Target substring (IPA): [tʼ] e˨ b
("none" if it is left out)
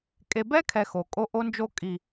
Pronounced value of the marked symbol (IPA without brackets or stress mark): kʼ